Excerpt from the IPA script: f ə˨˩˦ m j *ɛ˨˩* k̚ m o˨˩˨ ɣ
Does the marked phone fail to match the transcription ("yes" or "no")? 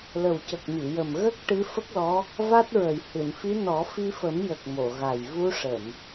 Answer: yes